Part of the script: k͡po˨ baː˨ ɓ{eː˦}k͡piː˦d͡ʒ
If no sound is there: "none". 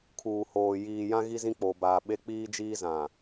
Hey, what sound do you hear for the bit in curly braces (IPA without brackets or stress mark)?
e˦